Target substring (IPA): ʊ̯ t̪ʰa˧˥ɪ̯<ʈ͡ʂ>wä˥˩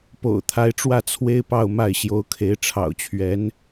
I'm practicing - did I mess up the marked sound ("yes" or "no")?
no